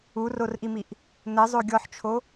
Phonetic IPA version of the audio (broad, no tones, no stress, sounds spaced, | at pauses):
u r o r ʔ i m i ʔ | n ɘ zˤ o ɡʲ ɔ ħ t͡ʃʰ o